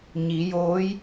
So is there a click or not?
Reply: no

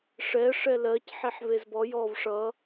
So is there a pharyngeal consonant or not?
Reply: yes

